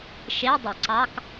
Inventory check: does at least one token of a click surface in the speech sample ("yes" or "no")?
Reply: yes